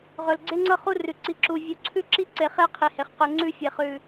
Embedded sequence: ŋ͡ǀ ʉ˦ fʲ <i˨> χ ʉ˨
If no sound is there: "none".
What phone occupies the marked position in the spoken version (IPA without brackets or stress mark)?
e˨